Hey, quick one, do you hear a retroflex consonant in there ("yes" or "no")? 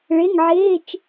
yes